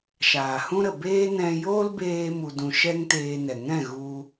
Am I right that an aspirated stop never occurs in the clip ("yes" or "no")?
yes